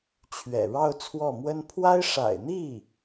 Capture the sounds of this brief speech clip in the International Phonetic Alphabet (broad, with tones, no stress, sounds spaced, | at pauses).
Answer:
t͡ɕʰ ɥ ɛ̰˨˩ ɻ ɑ˥˧ ʊ̯ t͡sʰ w ɔ˥˩ m w ə˥ n pʰ w a˥ ɪ̯ ʂ a̰˨˩ ɪ̯ n̪ i˥˩